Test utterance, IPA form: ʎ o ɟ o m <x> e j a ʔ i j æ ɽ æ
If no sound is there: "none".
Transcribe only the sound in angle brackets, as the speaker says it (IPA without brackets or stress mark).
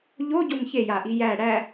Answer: ç